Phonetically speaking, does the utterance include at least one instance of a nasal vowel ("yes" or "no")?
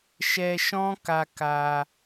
yes